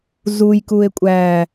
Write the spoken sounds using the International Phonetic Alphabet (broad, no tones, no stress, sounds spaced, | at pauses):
z u j k u e̯ kʷʼ æ